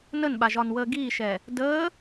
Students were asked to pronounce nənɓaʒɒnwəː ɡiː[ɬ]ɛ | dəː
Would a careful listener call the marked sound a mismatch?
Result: yes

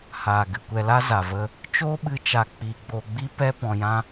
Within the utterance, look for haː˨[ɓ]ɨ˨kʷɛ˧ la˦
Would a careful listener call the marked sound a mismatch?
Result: yes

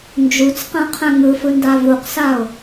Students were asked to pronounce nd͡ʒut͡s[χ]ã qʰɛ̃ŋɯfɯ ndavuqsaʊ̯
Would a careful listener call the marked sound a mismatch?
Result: yes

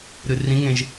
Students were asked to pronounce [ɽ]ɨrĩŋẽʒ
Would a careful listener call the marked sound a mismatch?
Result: yes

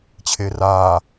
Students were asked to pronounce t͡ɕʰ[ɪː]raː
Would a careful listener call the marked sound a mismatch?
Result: no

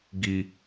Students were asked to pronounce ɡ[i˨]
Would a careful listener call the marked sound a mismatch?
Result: no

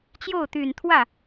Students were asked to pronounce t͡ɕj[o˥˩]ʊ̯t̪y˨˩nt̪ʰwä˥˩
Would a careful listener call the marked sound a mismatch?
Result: no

